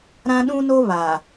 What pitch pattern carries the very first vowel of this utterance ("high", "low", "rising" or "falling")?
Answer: high